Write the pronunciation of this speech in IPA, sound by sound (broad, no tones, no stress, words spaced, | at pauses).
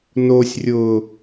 nosʲrʲʊː